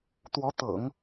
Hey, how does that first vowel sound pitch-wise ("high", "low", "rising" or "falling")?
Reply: rising